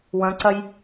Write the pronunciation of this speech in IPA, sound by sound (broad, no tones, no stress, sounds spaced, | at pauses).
w ɐ̃ ǀ ɐ j